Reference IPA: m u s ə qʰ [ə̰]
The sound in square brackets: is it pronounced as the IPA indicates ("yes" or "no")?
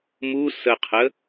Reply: no